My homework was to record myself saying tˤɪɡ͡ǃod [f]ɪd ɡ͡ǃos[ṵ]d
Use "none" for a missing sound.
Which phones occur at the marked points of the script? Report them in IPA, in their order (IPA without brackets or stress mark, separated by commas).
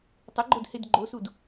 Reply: h, u